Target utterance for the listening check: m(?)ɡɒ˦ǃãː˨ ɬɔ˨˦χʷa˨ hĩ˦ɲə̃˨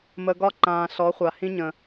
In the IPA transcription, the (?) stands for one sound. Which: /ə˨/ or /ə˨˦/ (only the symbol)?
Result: ə˨